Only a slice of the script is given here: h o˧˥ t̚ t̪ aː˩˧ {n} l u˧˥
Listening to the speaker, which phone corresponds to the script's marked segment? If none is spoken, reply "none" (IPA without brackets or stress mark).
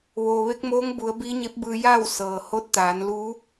n